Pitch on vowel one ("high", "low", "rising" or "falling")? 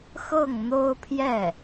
falling